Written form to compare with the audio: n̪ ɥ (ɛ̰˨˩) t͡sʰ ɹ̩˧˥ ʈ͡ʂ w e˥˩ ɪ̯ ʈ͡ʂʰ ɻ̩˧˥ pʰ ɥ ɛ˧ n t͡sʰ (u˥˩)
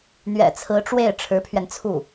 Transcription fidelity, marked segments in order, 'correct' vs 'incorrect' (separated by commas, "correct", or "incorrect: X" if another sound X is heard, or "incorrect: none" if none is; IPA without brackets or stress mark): correct, correct